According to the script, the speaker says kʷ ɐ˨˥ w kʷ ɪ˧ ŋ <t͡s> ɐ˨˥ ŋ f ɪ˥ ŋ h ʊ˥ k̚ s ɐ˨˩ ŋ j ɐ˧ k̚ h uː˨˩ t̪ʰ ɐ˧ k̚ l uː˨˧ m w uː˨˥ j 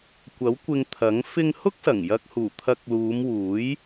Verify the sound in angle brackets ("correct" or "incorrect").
incorrect